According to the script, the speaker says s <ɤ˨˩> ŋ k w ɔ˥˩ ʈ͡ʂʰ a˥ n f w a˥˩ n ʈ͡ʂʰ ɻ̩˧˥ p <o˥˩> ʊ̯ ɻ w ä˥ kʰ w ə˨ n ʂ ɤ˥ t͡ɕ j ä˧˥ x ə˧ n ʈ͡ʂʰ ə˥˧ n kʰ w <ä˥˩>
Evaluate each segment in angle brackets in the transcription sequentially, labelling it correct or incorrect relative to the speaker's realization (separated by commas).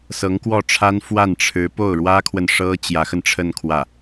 incorrect, correct, correct